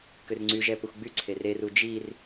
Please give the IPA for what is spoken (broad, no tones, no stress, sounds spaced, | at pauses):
k ø r ŋ͡ǀ y ʒ ɛ p ə xʷ ɡ͡b y ǀʰ e r e r u d͡ʒ i r